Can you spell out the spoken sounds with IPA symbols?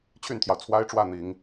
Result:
t͡ɕʰ y˥˩ n t̪ʰ j ɑ˩ ʊ̯ t͡sʰ w a˥ ɪ̯ ʈ͡ʂ w ä˥˩ n̪ i˨˩˦ ŋ

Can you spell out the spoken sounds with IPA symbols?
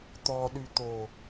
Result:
t̪ ɔ ɗ y t̪ o

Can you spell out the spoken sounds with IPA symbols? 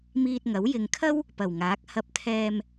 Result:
m iː˧ t̚ ŋ ɐ˨˥ w j ɪ˧ ŋ kʰ ɐ˥ w | p ɐ˨˩ w ŋ aː˨˥ k̚ h ɐ˧ p̚ t̪ʰ ɛː˧ m

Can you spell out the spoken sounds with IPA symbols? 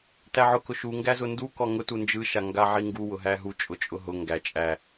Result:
t æ ʕ ʊ k ʊ ʃ u ŋ ɡ æ z ʊ n d u k ɔ ŋ ʊ t u n d͡ʒ ɯ ʃ a ŋ ɡ a ʕ i ŋ ɡ u w ʊ ɦ æ ɦ u t͡ʃʼ ʊ t͡ʃʼ ʊ ɦ ʊ ŋ ɡ æ t͡ʃʼ æ

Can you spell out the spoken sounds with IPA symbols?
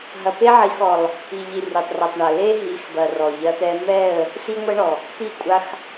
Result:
ɦ ɐ˨ p e˦ ʕ i˨˦ x ɔ˨ lˠ | i˨ ʎ i˨ r i˨ tˤ r ɛ˨ tˤ ɳ ɐ˨ l e˦ ɦ i˨˦ x b ɐ˨ r ɔ˨ ʎ ɐ˦ t̪ ɛ˦ m ɛ˦˨ ə̯ | s i˦ ŋʷ ɛ˦ ɳ ɔ˨ | t̪ i˦˨ kʷʼ a˦ x

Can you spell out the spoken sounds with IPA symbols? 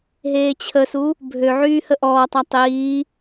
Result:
ɦ eː t͡ɕʰ ə s u | bʱ ø ʕ yː h ə ʔ ɔː tˤ a tˤ iː

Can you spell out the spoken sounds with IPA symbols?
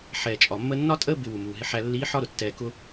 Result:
ħ ɛː˩ t͡ʃʼ ɒ˩ mː əː˥ nː ɒ˥ tʼ əː˥ b ɪ˧ w u˩ m uː˩ ɦ ɪ˧ ħ æ˧ lː iː˧˥ ħ ɒ˥ ɾ ʊ˩ tː ɛː˧ k ʊ˥

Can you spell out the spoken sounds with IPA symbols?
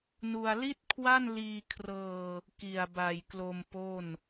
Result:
n u˧ a̯ l i˥˩ t̚ kʰ w a˥˩ n l iː˧ kʰ r ɤː˧ | k i˨˩ a̯ b a˨˩ j k l o˧ m p o˥˩ n

